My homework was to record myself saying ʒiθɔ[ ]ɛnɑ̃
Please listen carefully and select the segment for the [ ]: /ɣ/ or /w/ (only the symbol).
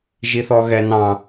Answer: ɣ